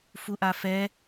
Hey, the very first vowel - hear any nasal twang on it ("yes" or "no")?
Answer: no